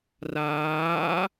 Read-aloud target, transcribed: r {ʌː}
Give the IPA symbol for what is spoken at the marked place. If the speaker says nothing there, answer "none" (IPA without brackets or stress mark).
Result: aː